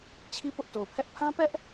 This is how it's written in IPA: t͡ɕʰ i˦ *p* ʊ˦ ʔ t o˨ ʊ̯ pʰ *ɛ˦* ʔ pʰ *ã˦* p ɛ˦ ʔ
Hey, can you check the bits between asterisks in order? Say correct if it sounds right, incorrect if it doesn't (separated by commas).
correct, correct, correct